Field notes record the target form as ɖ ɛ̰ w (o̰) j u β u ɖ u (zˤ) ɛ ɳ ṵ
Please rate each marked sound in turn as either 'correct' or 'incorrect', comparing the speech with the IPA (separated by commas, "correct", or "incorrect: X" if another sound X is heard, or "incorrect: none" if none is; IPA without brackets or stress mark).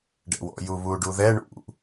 incorrect: ɔ̰, incorrect: ð